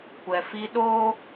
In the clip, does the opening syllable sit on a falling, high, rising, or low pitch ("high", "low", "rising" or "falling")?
low